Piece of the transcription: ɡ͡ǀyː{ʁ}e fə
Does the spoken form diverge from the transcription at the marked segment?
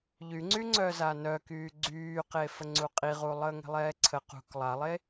yes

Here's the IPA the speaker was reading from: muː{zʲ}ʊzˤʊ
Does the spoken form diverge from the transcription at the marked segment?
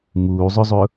yes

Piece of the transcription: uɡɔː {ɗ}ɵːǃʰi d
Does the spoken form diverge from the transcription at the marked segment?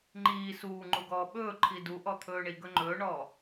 yes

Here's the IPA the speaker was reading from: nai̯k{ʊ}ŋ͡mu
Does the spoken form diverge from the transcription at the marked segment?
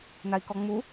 yes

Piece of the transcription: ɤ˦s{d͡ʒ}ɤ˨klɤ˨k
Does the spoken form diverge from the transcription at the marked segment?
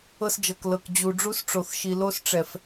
no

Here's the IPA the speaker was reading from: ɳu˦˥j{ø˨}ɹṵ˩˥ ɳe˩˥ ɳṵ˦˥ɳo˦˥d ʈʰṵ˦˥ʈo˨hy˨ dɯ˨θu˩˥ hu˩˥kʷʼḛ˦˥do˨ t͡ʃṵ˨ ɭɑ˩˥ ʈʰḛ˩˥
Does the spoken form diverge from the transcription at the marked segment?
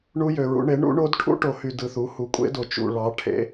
no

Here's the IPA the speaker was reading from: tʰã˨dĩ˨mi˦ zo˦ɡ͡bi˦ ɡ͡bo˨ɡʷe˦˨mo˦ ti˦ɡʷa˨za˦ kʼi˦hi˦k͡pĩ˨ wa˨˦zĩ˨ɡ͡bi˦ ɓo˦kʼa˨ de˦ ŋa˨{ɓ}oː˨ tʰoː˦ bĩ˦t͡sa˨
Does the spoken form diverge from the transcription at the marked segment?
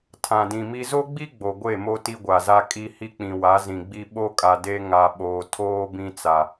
no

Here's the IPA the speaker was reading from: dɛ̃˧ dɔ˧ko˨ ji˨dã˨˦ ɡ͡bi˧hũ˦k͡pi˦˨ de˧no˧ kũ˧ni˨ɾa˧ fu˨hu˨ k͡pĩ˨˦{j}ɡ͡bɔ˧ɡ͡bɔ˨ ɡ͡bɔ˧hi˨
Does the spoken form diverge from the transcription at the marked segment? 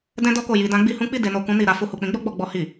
yes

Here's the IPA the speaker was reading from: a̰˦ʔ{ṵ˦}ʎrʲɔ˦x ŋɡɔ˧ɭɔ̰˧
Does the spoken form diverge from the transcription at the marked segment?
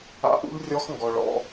no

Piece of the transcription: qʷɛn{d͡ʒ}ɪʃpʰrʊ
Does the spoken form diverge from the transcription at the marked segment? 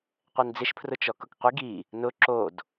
yes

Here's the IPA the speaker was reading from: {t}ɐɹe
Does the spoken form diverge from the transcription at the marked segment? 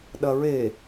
yes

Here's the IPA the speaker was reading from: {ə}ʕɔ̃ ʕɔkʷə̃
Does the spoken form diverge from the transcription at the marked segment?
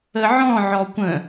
no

